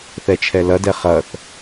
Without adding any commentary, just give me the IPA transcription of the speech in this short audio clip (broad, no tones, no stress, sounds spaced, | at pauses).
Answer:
θ ɛ t͡ʃʰ ɛ l ɐ d ɛ χ ɐ θ